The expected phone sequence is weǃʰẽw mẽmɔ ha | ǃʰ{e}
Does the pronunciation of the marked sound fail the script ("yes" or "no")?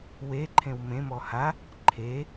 no